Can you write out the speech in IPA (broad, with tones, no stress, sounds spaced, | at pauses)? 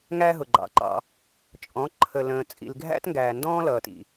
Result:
ŋ æ˦ ɦ ʊ˨ ɡ͡ǃ ɑ̰˨ ǃ ɑ̰˧ | t͡ʃʼ ɔ̃˨˦ ǃʰ ə˨ l ə̃ː˨ t͡sʼ ḭ˨ l ɡʱ æ̰˦ t ŋ ɡ æː˨ n d ɔ̃ː˦ l ʌː˨ t ḭ˨